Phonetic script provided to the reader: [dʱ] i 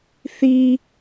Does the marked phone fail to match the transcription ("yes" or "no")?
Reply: yes